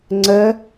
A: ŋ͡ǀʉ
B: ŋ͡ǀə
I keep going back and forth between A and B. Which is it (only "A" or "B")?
B